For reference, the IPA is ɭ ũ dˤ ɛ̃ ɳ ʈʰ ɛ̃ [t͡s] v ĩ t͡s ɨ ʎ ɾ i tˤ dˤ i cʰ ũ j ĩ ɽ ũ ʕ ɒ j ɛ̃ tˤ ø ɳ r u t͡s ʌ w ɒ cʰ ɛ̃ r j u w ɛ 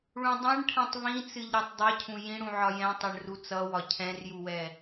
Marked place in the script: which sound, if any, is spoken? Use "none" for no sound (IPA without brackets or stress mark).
tˤ